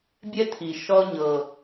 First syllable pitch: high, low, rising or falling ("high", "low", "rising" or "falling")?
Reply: high